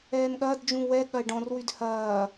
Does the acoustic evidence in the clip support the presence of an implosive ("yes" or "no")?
yes